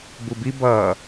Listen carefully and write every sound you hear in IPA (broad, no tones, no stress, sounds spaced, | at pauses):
b u b i b ʌː